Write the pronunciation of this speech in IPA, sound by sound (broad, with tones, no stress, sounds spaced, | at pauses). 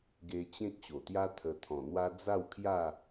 ɡ e˧ t͡ɕ ẽ˦ k̚ ɕ o˨˩ t̪ j a˦ t̪ʰ ə˧ t̪ʰ ɔ̃˨˩ n̪ w a˦ d͡z a˥˧ w kʰ j a˥˧